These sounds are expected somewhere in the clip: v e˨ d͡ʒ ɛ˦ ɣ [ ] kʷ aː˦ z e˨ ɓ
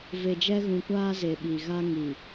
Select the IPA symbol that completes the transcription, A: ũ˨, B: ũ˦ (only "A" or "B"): A